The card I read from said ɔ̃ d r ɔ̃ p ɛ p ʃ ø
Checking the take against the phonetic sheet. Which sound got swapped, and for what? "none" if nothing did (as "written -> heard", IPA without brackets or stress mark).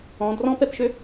none